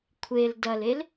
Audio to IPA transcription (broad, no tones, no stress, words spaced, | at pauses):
kʷʰel dɐlel